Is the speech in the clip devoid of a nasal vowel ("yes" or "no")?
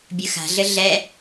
yes